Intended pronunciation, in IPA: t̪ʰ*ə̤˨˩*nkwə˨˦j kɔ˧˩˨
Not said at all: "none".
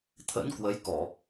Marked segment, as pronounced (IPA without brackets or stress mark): ə̰˧˥